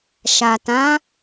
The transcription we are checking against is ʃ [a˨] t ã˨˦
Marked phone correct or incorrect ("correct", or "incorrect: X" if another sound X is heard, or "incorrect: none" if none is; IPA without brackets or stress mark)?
correct